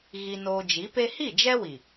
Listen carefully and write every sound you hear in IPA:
ɣ i˦ n oː˦ d͡ʒ i˨˦ p e˦ h i˦˨ d͡ʒ ɛ˦ w i˨

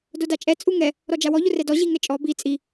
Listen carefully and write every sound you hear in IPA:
d o d a t͡ʃʼ ɛ t͡sʼ u ŋ ɛ | ɾ ɔ d͡ʒ a w ɔ ʎ ʊ r ɛ d ɔ ʑ i ŋ ɛ t͡ʃʼ ɔ b i t͡sʼ i

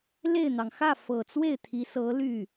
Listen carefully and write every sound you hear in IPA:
l e˥˩ ɪ̯ n̪ ɑ˩ ŋ x ä˥˩ f ɤ˨˩ t͡s w e˥˩ ɪ̯ t̪ʰ i˧˥ s ɤ˧˥ l y˥˩

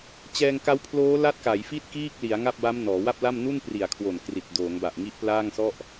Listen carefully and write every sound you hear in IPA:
t͡ɕ ɛː˧ ŋ k a˦˥ w pʰ l oː˦˥ l a˦˥ t̚ k a˩˦ j f i˥˩ t̚ k iː˥˩ k̚ l i˩˦ a̯ ŋ a˥˩ p̚ b a˦˥ m n ɔː˩˦ w a˥˩ p̚ l a˥˩ m n u˥˩ n p r i˨˩ a̯ kʰ w o˨˩ n k r i˨˩ t̚ d oː˩˦ ŋ b a˨˩ ʔ ŋ i˦˥ ʔ p l aː˥˩ ŋ s ɔ˥˩ ʔ

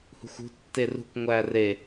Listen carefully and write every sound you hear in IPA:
h ṳ xʷ ṳ tː e r ṳ kʷ ŋʷ æ r e

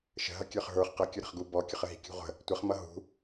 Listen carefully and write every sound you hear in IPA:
ʃ ə̤ ɦ ʌ kʲ ə˞ χ ɦ ə˞ χ q ʌ kʲ ʊ ɾ ə̤ χ ɡ u b ɔ kʲ ʊ χ ə ɦ i̤ kʲ ṳ ʁʷ ə̤ | tʷ ə χ m ʌ ɦ ṳ

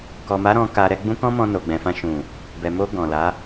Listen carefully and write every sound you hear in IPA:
k ɔ˨ m a˨˦ ɾ ɔ̃˧ k a˧ ɾ ɛ˧ ɡ͡b ũ˦ k ɔ̃˦ m ɔ̃˧ n o˨ ɡ͡b ɛ̃˨ f ã˧ ʃ ũ˨ | b ɛ˨ m o˧ ɡ ɔ̃˨ l a˨˦

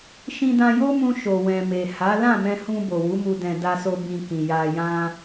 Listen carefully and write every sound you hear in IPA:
ʃ ĩ˧ d ã˧ j o˦ m ũ˧ ʃ o˨ w ɛ̃˨ m e˨ h a˨˦ l ã˦˨ m ɛ̃˧ h ũ˧ b o˨ w u˨˦ m u˧ d ɛ̃˨ d a˧ s o˧ b ĩ˧ k ĩ˨ j a˧ j ã˦

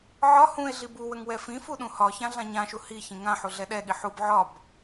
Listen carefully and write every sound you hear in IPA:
ʕ ɒ h ũ e̯ ɮ i b u w ə ŋ w ɛ f ĩ f u ɗ ũ h ɒ ç ã ɮ ã ɲ ã ʃ u h i ç ĩ ŋ ã ħ u ɮ ɛ ɗ ɛ ɠ i ħ u b ʕ ɒ b

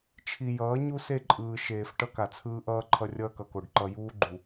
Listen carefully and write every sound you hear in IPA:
t͡ʃʰ i˨ j ʌː˨˦ ɲ u˦ s e˦˨ ǃʼ ɯː˨ ʃ eː˨ f ʈ ʌ˦ k a˨ t͡sʰ ɯː˦ ʔ ʌː˦ ǃʰ ʌ˦ rʲ ʌː˦ k ʌ˨ k o˨ ɖ ǃ ʌ˨ j uː˦ ɡ͡ǃ u˨

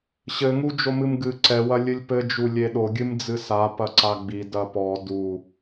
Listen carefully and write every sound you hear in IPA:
ɕ ɘ ŋ u d͡ʒ o m ɨ m ɡ ɨ ǀ ɛ w ɐ lʲ ɨ lʲ p ɘ d͡ʒ u lʲ e ɗ o ɡʲ ɨ m d͡z ɨ s a p ɐ ǀ a ɡ͡b i d ɐ p ɔ d u

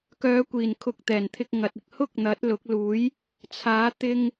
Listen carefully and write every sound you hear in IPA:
k œː˨˧ kʷ iː˨˩ n kʰ ʊ˨ k̚ t̪ ɛː˨˩ n t̪ʰ ɪ˧ k̚ ŋ ɐ˨ t̚ ɪ˧ k̚ h ʊ˥ k̚ n̪ ɐ˨˥ t̚ l ʊ˨˥ k̚ l uː˨˥ j | t͡sʰ aː˨˥ t̪ ɪ˧ ŋ

